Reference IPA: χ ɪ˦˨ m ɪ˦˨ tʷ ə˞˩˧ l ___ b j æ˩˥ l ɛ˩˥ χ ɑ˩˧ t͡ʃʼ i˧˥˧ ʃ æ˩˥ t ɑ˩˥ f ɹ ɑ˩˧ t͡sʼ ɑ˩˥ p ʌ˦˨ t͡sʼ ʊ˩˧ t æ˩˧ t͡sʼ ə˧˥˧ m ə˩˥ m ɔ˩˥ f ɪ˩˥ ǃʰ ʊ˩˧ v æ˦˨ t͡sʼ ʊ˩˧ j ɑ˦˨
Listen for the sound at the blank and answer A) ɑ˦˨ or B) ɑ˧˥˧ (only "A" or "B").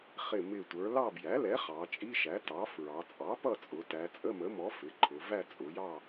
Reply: A